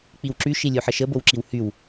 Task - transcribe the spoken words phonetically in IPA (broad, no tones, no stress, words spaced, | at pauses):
k͡piwǁy ʃilʲuħəʃə bowǁiwhyw